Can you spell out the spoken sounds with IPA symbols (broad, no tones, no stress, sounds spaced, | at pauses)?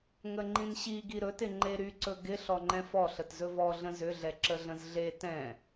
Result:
ŋ ə ŋ͡ǃ ĩ n ɕ i ɡ i ɾ ɵ t ɪ ŋ͡ǃ e ɾ y ǀ ɵ ɡ ɪ ɬ ɔ ŋ͡ǃ ɛ̃ f ɔ ɬ ə t z ɵ v ɔ ɮ ə̃ z ʏ ɮ ɛ ǁ ə ɮ ə̃ z ɮ e t ɛ̃